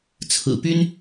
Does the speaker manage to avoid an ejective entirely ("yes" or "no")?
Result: yes